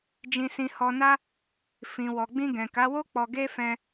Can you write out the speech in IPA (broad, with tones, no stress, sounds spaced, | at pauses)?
d͡ʒ ĩ˧ s ĩ˧ h ɔ˧ n a˦ | f ĩ˨ w ɔ˨ ɡ͡b ĩ˧ ɡ ɛ̃˨ k a˨˦ w o˦ k͡p ɔ˧ ɡ e˦ f ɛ̃˧